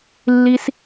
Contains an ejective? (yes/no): no